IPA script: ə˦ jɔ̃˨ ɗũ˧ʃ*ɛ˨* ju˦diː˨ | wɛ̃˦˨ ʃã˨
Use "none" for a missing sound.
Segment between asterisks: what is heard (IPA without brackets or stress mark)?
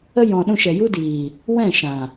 ɛ˨